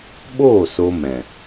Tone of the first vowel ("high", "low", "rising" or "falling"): falling